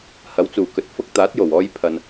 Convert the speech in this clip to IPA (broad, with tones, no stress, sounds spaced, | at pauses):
h ɐ˨˥ w t͡s uː˨˩ k ɵ˨ t̚ f ʊ˧ k̚ t̪ aː˨˥ t̚ j o˨˩ w ɔː˧ j pʰ ɐ˨ n